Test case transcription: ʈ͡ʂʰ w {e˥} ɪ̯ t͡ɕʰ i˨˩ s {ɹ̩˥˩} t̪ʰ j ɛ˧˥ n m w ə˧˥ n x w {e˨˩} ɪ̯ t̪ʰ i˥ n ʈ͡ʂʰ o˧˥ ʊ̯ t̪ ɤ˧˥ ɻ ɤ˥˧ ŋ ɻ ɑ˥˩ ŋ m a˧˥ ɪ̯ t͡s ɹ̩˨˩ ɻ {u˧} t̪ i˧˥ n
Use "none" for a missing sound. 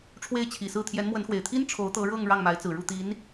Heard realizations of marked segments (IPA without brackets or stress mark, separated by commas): e˥˩, ɹ̩˥˩, e˨˩, u˥˩